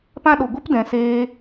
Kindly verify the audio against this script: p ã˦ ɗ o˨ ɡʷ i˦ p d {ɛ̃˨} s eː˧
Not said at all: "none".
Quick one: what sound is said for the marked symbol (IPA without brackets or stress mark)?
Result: ɛ̃˨